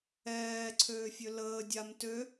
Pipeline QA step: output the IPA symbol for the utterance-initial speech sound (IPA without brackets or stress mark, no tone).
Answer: ɛː